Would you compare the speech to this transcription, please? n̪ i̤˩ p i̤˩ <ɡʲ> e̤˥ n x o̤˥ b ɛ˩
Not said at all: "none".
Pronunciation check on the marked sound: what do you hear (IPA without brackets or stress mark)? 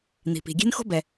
ɡʲ